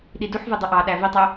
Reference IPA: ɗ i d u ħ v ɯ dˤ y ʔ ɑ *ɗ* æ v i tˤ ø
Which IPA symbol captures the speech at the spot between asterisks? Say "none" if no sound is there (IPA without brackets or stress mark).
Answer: ɗ